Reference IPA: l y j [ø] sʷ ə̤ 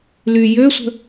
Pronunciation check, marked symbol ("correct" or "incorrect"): correct